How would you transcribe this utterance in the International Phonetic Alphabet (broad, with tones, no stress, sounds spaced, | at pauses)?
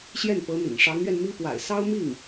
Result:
ɕ j ɛ˥˩ n p ɤ˧˥ n̪ ḭ˨˩ ŋ ʂ ɑ˧˥ ŋ ɥ ɛ˧ n m i˥ p w a̰˨˩ ɪ̯ s ɑ˥ ʊ̯ m i˥˩ ŋ